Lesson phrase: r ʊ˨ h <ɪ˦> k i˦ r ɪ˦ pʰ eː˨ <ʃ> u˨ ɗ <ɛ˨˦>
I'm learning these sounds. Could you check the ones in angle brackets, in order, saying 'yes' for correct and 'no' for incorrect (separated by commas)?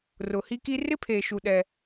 no, yes, no